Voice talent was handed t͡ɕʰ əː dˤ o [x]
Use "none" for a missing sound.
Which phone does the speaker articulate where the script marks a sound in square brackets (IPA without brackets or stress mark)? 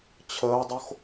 x